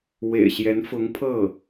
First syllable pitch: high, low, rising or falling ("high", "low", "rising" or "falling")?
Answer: low